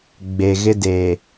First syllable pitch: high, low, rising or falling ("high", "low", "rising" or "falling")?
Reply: low